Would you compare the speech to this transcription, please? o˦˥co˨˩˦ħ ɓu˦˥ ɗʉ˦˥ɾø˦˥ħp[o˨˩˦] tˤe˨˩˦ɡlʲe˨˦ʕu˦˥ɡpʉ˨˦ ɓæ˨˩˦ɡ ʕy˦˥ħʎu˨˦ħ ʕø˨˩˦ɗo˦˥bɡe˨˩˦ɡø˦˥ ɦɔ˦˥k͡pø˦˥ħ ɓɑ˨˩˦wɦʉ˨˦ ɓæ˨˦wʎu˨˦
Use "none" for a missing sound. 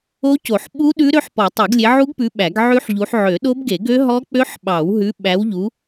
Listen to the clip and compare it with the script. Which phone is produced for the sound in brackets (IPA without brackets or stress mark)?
ɔ˨˩˦